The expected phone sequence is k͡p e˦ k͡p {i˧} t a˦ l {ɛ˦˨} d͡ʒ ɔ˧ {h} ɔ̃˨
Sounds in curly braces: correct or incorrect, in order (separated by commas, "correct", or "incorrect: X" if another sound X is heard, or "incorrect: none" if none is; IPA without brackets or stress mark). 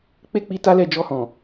correct, correct, correct